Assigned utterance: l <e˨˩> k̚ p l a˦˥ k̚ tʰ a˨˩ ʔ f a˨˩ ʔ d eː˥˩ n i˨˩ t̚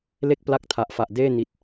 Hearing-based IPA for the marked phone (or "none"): e˥˩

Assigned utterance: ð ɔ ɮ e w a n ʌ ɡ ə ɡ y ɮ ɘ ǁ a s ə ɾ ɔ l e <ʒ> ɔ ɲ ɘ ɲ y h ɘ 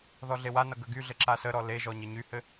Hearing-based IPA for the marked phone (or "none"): ʒ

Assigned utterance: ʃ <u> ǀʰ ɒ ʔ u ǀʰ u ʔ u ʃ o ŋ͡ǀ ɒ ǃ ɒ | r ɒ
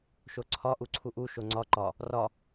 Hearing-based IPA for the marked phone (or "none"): o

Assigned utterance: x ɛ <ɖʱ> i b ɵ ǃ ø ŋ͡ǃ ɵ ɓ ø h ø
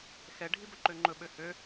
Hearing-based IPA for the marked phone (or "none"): ɖʱ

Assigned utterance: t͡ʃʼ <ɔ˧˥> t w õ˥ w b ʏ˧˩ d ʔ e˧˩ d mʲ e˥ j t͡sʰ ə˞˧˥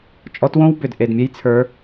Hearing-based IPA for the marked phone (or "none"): ɔ˧˥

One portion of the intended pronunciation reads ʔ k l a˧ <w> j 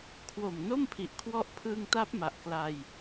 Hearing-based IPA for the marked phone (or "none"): none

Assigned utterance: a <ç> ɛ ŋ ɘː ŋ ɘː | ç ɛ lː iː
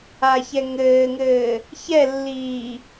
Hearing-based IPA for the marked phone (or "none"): ç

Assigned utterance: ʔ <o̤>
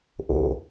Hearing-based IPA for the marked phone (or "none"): o̰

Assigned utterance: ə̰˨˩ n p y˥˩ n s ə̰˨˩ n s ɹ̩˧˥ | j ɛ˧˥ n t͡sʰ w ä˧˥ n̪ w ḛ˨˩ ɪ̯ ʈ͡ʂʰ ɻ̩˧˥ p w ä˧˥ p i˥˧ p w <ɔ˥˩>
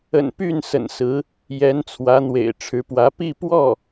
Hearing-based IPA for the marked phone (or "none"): ɔ˥˩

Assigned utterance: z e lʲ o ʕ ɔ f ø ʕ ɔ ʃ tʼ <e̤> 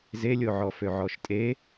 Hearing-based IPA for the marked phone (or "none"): e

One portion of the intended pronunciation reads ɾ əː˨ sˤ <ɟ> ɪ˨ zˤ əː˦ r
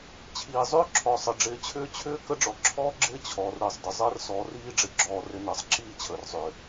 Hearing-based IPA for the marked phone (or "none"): d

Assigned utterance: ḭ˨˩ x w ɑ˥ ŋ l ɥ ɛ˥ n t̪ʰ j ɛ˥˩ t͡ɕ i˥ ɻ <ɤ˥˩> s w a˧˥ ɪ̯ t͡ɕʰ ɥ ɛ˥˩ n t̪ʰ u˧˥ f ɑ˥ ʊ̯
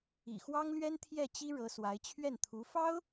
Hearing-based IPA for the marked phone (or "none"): ɤ˧˥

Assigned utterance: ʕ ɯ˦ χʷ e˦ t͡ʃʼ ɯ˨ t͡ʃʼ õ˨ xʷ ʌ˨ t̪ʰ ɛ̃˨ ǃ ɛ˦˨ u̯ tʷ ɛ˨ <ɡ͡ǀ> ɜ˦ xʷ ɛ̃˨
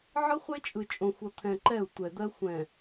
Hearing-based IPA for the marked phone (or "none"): d̪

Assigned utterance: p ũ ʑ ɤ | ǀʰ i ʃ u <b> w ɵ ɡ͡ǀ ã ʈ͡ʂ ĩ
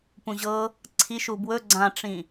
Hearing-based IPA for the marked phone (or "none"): b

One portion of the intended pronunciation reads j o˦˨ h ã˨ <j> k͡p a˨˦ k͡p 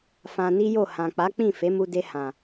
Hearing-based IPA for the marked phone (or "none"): none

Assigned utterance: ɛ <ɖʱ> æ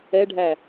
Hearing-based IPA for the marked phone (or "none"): ɖʱ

